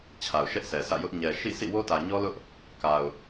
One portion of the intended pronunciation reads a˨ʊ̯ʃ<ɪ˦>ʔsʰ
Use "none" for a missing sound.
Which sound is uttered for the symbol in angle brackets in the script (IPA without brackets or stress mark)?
ɛ˦